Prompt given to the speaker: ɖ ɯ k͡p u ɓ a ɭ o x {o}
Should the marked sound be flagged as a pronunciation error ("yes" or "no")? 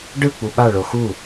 yes